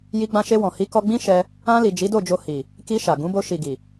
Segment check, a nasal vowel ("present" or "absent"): present